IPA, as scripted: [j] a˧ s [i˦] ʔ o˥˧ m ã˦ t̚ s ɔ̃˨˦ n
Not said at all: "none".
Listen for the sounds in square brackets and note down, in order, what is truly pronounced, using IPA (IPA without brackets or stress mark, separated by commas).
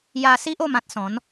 j, i˦